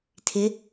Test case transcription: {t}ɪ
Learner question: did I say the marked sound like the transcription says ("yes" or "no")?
no